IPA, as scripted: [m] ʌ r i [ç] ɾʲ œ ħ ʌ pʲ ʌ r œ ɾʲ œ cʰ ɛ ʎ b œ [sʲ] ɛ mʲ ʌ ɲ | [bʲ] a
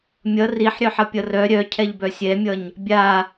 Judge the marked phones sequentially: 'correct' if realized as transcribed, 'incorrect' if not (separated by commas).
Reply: incorrect, incorrect, correct, correct